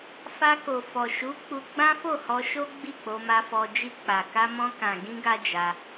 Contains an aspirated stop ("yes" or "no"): no